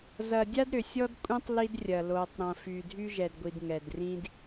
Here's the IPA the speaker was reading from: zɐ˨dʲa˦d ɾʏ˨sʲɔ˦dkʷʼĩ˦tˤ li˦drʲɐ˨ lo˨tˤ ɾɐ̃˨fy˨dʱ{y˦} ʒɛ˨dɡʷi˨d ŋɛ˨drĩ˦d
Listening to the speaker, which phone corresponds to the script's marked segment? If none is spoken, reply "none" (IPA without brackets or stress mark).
y˦